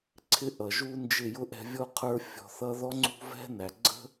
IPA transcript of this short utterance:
ǀʰɪ˦ʔʌ˨ʒu˦nd͡ʒɪ˦˨ jʊ˦ʔɛ̤˧ vʲɔ˦qʰə˞˦ fʲɔ̤˧θʌ˦ ðɔ˦ŋ͡ǀṳ˦vɛ̤˦næ˨ ɡ͡ǀə̤˦

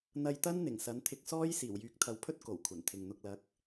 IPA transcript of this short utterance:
n̪ɐ˧jt̪ɐ˥n n̪ɪ˨˩ŋsɐ˨˥nt̪ʰɪ˧k̚ sɔː˥j siː˨˩wjyː˨˥k̚t̪ʰɐ˨wpʰɵ˥t̚ ko˨˩wkʷʰɐ˨˩nt̪ʰɪ˨ŋn̪ʊ˧k̚ lɐ˨˥k̚

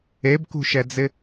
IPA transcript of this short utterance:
ebkṳʃɛd͡zɪ

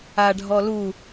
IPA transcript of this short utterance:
aɖʱɔ lu

